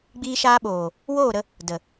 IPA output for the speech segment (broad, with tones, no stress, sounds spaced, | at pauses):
ɡ͡b iː˧ ʃ aː˧ ɓ oː˨ | w oː˦˨ ɾ ə˧ | d ə˨